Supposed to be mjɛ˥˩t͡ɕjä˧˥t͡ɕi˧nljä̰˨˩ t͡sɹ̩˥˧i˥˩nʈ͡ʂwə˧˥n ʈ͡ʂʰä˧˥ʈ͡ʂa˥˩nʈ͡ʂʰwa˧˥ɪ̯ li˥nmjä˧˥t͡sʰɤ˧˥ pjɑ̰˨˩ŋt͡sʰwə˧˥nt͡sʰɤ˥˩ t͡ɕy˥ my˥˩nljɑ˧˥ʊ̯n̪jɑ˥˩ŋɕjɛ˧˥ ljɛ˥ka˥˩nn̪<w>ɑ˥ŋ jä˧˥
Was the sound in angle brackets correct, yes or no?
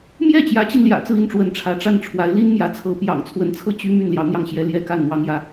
yes